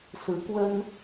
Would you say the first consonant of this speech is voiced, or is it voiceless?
voiceless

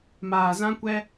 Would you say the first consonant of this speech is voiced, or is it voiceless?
voiced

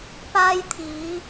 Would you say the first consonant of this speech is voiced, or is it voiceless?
voiceless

